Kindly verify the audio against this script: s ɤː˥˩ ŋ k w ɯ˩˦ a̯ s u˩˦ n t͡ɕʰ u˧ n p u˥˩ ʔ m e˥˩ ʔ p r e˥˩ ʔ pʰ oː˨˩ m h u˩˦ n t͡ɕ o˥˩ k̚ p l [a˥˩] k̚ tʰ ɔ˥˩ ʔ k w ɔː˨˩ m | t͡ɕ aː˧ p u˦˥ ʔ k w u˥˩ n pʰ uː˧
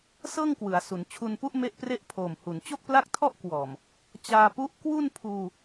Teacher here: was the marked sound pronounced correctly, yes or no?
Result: yes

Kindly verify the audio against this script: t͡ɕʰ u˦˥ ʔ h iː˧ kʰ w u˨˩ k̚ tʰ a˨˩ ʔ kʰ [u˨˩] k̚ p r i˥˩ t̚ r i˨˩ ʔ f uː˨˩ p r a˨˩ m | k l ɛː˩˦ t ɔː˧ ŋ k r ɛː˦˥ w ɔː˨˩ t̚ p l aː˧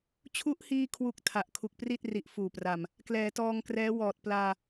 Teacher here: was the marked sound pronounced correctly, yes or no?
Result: yes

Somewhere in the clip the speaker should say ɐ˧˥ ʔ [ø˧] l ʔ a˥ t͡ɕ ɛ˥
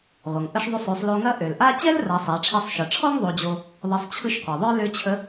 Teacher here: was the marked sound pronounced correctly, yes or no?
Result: no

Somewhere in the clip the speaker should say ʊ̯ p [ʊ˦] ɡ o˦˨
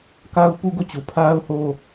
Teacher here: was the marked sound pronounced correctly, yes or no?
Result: no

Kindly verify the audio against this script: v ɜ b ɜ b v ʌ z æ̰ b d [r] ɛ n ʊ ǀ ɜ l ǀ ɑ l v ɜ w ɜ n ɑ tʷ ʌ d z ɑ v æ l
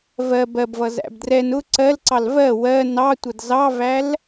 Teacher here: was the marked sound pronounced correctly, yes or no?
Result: yes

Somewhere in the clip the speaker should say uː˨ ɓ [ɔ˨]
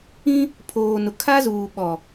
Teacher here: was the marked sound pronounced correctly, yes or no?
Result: yes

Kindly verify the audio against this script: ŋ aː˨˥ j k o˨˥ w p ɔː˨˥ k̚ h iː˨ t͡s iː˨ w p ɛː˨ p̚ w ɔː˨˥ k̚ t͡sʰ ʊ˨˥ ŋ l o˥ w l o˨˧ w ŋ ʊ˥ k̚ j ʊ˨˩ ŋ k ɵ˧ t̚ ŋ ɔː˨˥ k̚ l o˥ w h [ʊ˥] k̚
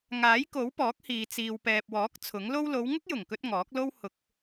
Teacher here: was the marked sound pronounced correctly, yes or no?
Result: no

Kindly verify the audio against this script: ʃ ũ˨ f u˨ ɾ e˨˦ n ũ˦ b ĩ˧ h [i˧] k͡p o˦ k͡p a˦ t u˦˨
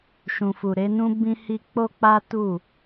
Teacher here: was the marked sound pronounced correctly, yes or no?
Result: yes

